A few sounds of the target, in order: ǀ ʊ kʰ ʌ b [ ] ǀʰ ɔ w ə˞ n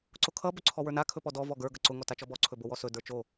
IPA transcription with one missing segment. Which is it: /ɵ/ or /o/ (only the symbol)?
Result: ɵ